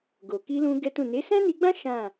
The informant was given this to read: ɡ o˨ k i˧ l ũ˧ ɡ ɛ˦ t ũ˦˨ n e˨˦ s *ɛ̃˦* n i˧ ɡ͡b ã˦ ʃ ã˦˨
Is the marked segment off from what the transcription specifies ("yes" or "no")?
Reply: no